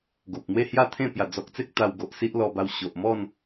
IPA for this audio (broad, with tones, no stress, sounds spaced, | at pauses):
ɡ o˨ p̚ n̪ w e˥˧ h j a˥˧ t̪ʰ ẽ˥˧ p j a˨˩ d͡z ɔ˨ k̚ t͡s e˦ k̚ t̪ a˧ w ɡ o˨ ʔ s i˦ ʔ l ɔ˧ b a˧ w ɕ o˨ ʔ m ɔ˥˧ n